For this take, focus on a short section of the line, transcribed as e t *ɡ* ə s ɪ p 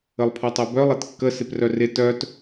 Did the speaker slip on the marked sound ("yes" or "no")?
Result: yes